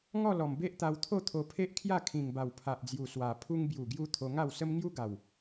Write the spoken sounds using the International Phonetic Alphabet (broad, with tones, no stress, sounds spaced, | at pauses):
ŋ ɔ˥˧ l ɔ˨˩ m b e˦ ʔ t̪ a˧ w t̪ʰ o˥˧ t̪ʰ o˧ pʰ e˦ ʔ kʰ j a˥˧ kʰ ĩ˨˩ ŋ b a˨˩ w pʰ a˨ ʔ d͡z j u˨˩ s w a˨˩ pʰ u˧ ŋ b j u˨˩ ɡ j u˧ t̪ʰ o˧ ŋ a˥˧ w s ə˦ m ŋ j u˦ ɡ a˨˩ w